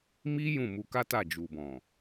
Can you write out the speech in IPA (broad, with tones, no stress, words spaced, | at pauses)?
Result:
mi˦ jũ˦˨ mu˧ka˦ta˦˨ d͡ʒu˨bɔ̃˨